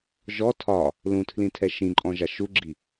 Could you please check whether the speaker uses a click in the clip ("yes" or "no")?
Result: yes